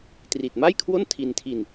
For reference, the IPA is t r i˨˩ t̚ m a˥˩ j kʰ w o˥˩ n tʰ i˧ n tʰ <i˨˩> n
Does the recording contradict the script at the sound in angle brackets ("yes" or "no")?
yes